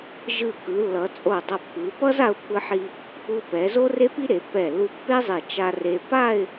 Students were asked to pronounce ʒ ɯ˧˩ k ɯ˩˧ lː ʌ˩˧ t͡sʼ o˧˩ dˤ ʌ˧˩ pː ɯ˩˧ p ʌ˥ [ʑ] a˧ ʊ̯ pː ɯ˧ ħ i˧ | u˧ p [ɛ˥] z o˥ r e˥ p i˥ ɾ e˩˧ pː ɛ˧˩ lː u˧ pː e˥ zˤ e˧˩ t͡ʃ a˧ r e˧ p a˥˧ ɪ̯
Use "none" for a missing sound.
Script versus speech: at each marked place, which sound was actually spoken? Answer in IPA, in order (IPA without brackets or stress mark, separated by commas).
z, ɛ˩˧